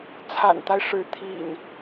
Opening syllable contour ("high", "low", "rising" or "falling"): low